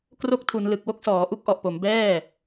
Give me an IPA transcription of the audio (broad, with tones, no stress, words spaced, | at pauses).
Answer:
kro˦˥k̚tʰu˩˦n lɯ˨˩k̚wo˥˩k̚sɔː˩˦ ʔu˦˥k̚ʔɔ˨˩ʔpo˩˦m bɛː˥˩